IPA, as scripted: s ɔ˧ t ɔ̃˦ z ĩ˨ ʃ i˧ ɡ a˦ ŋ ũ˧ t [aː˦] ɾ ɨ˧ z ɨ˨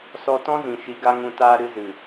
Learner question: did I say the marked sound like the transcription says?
yes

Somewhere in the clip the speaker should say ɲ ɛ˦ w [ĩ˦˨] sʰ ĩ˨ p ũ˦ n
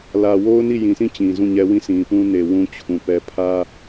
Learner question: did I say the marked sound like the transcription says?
yes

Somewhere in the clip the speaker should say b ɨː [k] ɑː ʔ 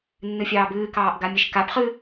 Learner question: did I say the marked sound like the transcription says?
yes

